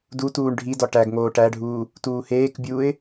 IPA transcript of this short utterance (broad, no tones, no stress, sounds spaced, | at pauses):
d u t uː ɳ ɖʱ i d ɒ ʈ æ ɡ ŋ oː ʈ æ ɖʱ uː | t uː h eː k bʲ uː ɪ̯